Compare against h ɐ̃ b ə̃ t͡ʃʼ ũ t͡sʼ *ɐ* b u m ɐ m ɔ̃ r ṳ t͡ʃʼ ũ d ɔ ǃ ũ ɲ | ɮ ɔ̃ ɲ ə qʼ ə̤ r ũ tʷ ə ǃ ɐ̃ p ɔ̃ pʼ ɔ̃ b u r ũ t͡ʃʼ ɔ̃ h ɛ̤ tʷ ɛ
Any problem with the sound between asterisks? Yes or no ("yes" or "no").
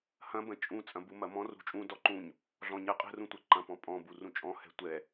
yes